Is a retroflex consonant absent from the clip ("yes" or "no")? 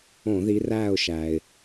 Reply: yes